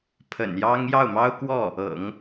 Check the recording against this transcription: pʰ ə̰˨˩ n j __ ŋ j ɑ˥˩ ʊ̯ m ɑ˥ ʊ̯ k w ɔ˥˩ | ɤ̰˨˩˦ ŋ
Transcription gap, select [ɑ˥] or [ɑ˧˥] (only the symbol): ɑ˥